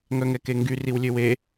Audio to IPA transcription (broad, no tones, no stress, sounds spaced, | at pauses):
ŋ œ ŋ ɛ k e ŋ ɡ y r i w lʲ ø w e